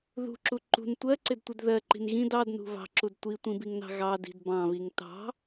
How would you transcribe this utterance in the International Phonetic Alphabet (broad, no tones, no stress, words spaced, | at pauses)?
ðṳǁu ǃṳn tʷɜǀɪdtʷɪd ðɜǃi̤n ɣĩd ɑdnṳ βɑ̤ǁud tʷitʷĩbiŋnɑ̤ ɣɑdi̤d bɑ̃βiŋ tɑ̤